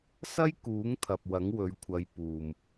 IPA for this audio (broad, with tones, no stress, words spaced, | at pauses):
sɐ˥jkuː˨˥ŋt̪ʰɐ˨p̚ wɐ˨˥ŋwɵ˨˧ɥkʷʰɐ˨˧j puː˨m